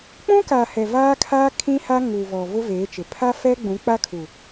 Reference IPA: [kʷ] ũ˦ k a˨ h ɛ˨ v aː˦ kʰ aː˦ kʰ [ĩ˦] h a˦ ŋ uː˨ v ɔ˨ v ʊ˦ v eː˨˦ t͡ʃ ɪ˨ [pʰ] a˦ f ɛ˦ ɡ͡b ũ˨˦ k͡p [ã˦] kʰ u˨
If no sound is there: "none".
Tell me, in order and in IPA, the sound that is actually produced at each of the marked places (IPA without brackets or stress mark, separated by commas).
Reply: k͡p, ĩ˦, pʰ, a˦